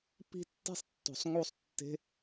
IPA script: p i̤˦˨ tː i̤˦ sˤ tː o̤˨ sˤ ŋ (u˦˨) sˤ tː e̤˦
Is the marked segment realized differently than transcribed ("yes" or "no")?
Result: no